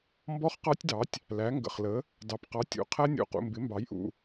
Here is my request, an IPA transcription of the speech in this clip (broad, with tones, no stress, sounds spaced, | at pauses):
m b ɔ˦˥ χ q ɑ˦˥ tʲ d ɑ˩˥ tʲ | l æ˩˥ ŋ ɡ ə̰˩˧˩ χ l ə˩˥ | d ɑ˩˧˩ p q ɑ˩˥ tʲ ṵ˩˧˩ qʰ æ˦˥ nʲ ṵ˩˧˩ q ṵ˩˧˩ m b ɪ˩˥ m b ɑ˩˥ j ʔ ṵ˩˧˩